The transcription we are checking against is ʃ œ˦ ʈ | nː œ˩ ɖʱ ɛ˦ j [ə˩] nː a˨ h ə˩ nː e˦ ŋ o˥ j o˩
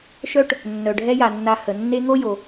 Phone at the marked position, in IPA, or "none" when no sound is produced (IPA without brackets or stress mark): a˩